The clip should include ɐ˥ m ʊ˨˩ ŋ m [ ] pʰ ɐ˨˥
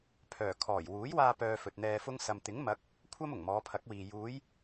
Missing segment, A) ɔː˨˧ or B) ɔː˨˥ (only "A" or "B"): A